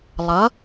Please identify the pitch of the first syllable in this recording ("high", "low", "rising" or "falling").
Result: rising